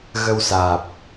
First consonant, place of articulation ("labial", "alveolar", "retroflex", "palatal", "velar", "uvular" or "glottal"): velar